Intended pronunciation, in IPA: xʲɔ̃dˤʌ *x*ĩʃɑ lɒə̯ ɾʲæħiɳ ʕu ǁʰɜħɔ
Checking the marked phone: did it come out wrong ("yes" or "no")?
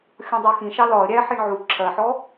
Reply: no